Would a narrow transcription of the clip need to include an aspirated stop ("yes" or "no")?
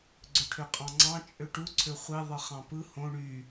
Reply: yes